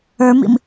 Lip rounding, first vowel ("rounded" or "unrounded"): unrounded